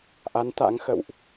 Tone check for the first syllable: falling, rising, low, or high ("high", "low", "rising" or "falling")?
rising